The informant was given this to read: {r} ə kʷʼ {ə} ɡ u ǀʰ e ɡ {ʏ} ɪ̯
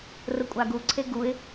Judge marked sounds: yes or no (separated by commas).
yes, no, no